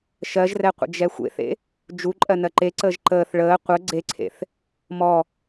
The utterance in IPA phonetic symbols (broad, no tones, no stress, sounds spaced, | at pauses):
ʃ ɜ ʒ r ɛ qʷ ə̰ d͡ʒ ɛ xʷ ḛ θ ḛ | d͡ʒ u ǃʼ ɜ n ɜ ǃ e ǀ əː ʒ ǃ əː θ ɭ əː qʷ ə ɡ͡ǀ e ǀʰ ḛ θ | m ɔ